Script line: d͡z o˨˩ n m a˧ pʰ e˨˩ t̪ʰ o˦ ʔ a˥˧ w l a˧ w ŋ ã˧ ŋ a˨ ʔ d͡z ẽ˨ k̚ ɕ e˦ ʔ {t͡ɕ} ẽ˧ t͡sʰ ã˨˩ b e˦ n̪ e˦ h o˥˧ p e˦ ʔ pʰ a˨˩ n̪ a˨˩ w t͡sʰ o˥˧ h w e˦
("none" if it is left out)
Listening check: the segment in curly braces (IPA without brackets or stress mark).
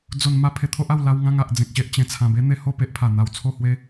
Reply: t͡ɕ